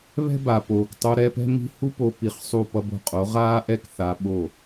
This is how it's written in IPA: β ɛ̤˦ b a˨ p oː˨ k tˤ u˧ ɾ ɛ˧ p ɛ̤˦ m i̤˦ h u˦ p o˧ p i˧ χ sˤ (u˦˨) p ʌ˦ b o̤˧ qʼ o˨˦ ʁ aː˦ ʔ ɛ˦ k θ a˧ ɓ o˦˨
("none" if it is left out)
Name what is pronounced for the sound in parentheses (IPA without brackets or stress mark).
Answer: u˦˨